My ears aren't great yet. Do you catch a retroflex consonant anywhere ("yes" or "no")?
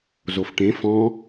yes